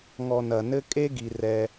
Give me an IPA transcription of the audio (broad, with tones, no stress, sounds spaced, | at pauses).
ŋ ɔ˨ n ɐ˩ n ɘ˥ kʼ e˥ ɡ i˩ r ɛ˨